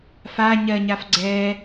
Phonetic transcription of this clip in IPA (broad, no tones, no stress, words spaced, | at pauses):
fa ɲɜɲaf ɡ͡ǀɛ